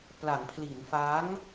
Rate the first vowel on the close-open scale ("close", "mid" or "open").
open